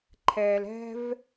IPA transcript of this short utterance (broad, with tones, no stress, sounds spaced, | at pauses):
ǃʰ ɛː˨ l ɛ̤˦ v